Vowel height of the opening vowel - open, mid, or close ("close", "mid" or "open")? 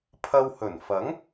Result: open